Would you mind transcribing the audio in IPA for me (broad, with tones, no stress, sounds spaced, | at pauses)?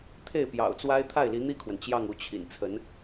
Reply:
t̪ʰ e˥˩ ɪ̯ p j ɑ̰˨˩ ʊ̯ t͡s w a˥ ɪ̯ t̪ʰ a˥˩ ɪ̯ l i˧˥ n̪ i˥˩ kʰ w ə˩ n t͡ɕ j ɑ˥˧ ŋ u˥˩ t͡ɕʰ ḭ˨˩ n t͡sʰ ə˧˥ n